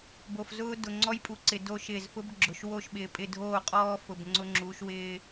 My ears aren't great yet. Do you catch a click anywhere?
yes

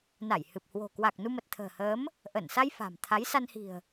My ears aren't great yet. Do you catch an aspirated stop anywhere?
yes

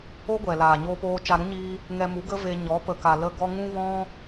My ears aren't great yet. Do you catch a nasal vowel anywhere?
yes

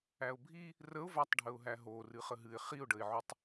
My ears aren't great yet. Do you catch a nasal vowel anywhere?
no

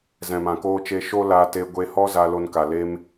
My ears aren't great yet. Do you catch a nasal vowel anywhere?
yes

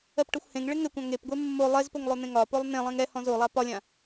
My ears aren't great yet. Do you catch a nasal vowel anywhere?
yes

